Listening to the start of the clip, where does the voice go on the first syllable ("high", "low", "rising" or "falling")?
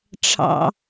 low